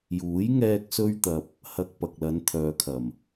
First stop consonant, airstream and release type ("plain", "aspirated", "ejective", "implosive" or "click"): plain